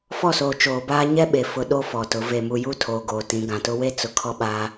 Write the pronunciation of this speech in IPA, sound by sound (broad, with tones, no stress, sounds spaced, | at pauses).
f ɔ˦˨ s oː˨ t͡ʃ oː˨ b aː˦ ɲ ɛ˦ ɓ e˨ f ʊ˨ ɗ o˦ f ɔ˨ t ʊ˨˦ v e˨ m u˨ j u˦ tʰ oː˨ ɡ oː˨ t ĩ˨˦ ɡ ã˨ t ʊ˦ w e˦ t͡s ʊ˨ kʰ ɔ˦ ɓ aː˦